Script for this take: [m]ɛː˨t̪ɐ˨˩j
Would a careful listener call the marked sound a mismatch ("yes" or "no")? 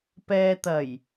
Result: yes